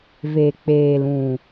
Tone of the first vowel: low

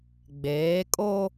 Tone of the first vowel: rising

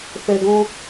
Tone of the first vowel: low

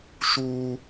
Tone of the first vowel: high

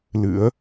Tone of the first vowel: rising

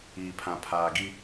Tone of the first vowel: low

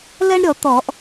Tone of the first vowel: high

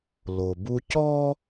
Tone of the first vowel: low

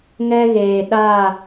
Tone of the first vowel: high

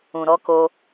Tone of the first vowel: low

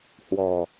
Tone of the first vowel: low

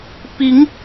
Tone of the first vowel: rising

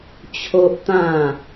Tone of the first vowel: high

